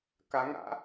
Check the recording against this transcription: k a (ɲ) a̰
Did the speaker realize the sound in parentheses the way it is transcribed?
no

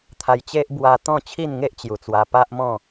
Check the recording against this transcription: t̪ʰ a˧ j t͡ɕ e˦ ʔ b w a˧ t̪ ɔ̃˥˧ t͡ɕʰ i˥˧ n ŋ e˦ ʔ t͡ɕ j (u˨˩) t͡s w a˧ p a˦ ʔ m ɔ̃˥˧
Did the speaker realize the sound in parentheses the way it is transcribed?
yes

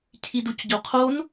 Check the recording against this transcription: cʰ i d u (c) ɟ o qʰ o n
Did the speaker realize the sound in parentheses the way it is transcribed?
yes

